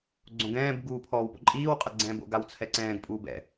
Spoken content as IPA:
ɡ͡ǀ õ ɡ ɛ̃ː b ɡ uː pʰ ɔː w p o̰ ǃʼ iː w qʼ a ɡ͡ǀ ɛ̃ː b o̰ ɡ a w t͡sʰ ɛ ǀ ɛ̃ː ɡ pʼ uː b ɛ̰

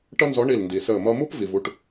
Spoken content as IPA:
ʈ ʌ˥ n z ɔ˧˥ ɳ i˦˨ l n d i˨ s əː˦˨ m ʌ˥ m u˥ p v i˨ v u˦˨ ʈ

